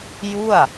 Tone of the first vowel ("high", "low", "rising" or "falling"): falling